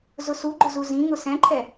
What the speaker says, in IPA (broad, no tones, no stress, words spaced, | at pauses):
zʊsuɡ͡ǃʊ zuzĩŋʊ sɛ̃ǃʰɛ